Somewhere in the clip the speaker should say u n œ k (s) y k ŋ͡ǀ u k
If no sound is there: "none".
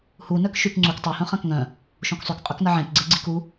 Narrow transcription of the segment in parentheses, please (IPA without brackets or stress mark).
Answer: ʃ